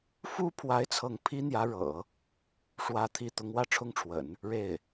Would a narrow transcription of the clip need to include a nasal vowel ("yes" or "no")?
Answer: no